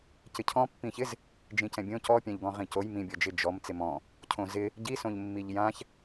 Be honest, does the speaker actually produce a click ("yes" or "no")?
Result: no